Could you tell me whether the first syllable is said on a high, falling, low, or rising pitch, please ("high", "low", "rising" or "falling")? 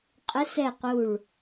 rising